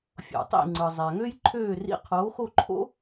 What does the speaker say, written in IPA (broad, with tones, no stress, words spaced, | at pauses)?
fʲo̰˩tˤḭ˥˩ ŋ͡ǀɯ˩zˤæ˩ŋø˥jǃʰøː˥˩ rḭ˧qʰoː˩˥xo˥˩ǃʰo̰˥